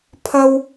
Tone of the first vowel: high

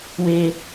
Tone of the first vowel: high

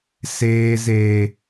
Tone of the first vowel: high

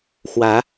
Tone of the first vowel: rising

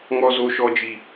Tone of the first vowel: high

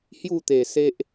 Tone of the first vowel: falling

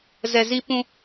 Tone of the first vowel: low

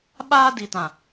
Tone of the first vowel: high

